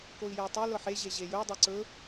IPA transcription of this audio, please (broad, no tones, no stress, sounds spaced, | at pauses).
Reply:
k o i̯ j e i̯ tˤ e l ɤ ħ e ʑ e ʑ e j ɵ j dˤ ɤ ǀ ɵ